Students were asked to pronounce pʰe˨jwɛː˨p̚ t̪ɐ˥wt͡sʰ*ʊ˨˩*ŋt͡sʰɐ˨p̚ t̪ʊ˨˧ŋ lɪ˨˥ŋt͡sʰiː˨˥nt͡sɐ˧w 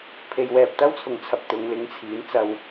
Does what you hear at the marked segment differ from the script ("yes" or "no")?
no